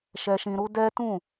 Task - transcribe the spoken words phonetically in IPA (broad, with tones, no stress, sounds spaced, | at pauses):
ʃ ɛ˧ ʃ ĩ˧ ɾ u˦ d ɛ˦ t ũ˦˨